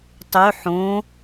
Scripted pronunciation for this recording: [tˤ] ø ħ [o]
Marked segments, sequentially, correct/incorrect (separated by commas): correct, incorrect